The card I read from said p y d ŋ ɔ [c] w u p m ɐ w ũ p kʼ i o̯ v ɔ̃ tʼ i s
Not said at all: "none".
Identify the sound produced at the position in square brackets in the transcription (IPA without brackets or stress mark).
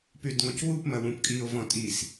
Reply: c